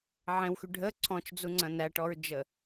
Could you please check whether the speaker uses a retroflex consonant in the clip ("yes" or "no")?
yes